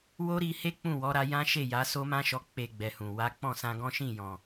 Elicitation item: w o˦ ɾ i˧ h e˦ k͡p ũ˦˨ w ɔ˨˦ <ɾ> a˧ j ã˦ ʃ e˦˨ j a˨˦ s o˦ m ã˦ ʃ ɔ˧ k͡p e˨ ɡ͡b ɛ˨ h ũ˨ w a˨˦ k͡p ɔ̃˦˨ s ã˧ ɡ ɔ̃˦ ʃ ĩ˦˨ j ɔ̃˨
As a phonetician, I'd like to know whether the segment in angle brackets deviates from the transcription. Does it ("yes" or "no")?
no